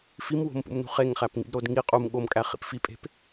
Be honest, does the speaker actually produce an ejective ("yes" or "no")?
yes